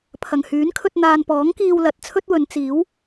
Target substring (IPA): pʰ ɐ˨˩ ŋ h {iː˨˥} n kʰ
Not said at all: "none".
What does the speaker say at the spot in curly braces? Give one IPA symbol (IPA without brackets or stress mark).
yː˨˥